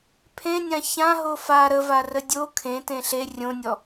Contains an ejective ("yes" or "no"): no